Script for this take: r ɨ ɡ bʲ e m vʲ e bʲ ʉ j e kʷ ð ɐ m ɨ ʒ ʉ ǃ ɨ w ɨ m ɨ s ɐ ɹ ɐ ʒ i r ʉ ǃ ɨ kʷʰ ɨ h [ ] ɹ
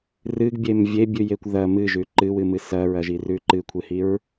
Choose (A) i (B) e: A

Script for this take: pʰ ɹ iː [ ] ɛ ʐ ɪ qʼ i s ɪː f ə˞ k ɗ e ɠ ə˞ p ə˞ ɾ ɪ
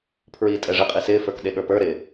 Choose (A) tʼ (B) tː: A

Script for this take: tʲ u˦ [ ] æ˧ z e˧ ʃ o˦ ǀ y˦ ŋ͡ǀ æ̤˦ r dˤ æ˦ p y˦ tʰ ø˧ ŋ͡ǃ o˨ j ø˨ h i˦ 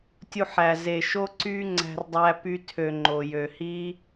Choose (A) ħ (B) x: A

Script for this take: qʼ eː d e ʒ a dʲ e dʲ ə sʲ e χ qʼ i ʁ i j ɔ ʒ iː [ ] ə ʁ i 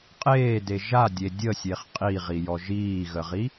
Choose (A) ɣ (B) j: A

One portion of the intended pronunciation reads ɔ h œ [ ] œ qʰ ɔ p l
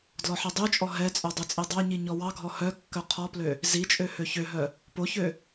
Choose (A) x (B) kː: B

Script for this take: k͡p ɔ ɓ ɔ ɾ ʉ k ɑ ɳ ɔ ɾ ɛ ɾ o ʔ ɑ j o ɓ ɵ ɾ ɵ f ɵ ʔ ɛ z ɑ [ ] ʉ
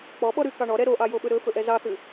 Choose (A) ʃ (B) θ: B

